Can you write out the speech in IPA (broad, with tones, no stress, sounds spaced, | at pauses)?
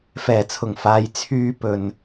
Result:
f ɛː˨˩ t͡sʰ ʊ˨˩ ŋ f aː˨ j t͡sʰ yː˧ p ɵ˨ n